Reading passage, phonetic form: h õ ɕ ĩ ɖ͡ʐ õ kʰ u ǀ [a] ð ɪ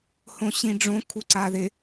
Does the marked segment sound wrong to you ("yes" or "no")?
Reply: no